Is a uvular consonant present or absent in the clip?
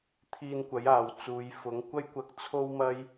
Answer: absent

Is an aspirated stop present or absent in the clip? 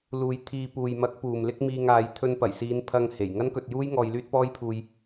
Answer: present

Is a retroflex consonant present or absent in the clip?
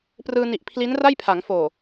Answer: absent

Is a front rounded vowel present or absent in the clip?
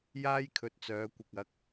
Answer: present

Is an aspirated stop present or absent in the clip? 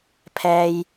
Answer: present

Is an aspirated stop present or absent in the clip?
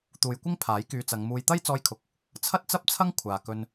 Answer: present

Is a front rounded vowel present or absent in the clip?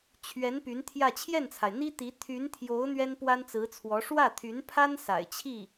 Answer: present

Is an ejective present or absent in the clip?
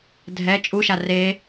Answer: present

